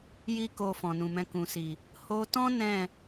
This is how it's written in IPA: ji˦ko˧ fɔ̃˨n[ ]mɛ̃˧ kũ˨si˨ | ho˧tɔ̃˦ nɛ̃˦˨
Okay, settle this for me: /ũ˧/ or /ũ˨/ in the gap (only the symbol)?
ũ˨